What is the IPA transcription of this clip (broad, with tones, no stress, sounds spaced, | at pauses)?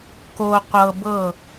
k o˨ qʷ ɤ˨ b ɤ˦˨